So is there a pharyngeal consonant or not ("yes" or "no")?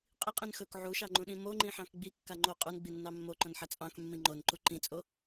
yes